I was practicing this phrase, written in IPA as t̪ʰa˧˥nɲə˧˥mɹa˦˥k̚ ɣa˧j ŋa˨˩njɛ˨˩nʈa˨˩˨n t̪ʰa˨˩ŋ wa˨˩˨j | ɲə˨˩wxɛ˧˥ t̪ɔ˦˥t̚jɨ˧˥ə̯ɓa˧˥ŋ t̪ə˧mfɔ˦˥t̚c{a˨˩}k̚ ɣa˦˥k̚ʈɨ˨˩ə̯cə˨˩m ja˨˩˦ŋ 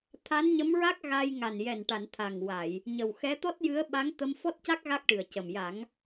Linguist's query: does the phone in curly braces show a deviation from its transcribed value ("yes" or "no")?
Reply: yes